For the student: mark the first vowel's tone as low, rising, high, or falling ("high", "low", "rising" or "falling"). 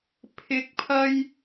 rising